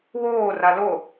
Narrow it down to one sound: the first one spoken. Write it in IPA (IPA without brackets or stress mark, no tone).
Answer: w